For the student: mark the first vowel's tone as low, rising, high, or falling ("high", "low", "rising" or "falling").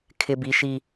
high